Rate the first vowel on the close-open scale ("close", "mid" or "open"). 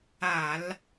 open